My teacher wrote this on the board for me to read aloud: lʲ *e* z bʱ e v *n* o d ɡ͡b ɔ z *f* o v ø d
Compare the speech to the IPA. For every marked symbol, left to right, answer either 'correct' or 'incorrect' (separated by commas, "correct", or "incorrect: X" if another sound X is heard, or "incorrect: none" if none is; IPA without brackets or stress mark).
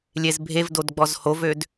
correct, incorrect: d, incorrect: h